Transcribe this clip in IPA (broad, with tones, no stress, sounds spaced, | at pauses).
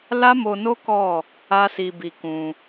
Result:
l a˦ m o˧ n o˦ k ɔ˦˨ | a˦ s i˧ b i˧ k ũ˧